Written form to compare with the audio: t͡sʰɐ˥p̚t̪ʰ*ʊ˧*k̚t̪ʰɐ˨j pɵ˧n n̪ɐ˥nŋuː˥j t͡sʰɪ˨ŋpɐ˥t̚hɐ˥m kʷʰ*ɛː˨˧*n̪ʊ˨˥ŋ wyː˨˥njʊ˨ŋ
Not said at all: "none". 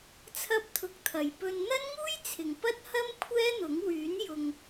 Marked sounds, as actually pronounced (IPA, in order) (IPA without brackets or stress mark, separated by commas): ʊ˧, ɛː˥